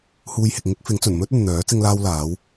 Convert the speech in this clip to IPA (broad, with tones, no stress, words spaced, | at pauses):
huː˧jhɪ˨k̚ ŋɪ˥k̚fɪ˨˥ŋt͡sɵ˨˩n mɵ˥t̚ɵ˨n n̪œː˨˥ t͡sɪ˥ŋlaː˥wlaː˨˥w